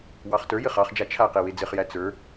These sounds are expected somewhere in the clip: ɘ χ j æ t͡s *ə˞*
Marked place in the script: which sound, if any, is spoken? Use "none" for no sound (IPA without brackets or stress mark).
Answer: ə˞